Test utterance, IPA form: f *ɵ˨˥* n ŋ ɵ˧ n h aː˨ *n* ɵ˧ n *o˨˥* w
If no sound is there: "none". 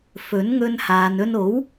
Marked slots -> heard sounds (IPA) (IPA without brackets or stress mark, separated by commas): ɵ˨˥, n, o˨˥